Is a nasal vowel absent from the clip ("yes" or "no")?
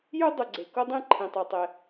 no